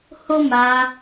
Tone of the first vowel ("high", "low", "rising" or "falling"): high